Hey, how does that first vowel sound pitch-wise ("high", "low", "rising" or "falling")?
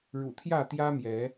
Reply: low